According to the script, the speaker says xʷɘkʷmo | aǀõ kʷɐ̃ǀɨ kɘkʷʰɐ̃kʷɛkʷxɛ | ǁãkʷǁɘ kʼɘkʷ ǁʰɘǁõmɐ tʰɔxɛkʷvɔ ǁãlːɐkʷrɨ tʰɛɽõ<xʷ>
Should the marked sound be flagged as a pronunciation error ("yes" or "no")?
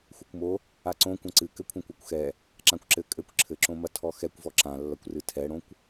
yes